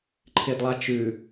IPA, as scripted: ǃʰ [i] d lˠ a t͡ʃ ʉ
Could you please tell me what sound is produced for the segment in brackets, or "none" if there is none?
ɪ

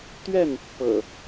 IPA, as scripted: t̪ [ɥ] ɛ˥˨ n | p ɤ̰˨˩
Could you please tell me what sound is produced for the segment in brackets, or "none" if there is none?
ɥ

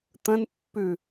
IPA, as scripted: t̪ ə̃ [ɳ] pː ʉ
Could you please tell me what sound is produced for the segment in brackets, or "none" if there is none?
n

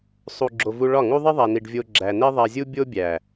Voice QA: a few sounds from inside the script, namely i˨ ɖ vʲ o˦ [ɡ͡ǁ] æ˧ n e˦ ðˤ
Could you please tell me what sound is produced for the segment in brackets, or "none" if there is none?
ɡ͡ǁ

